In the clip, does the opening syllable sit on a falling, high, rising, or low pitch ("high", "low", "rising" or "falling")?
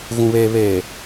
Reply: low